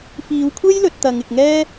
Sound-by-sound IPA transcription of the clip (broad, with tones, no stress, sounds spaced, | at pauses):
f iː˨˧ w kʷʰ e˥ j l ɵ˧ t̚ t̪ ɐ˨˧ ŋ ɪ˨ k̚ ŋ ɛː˥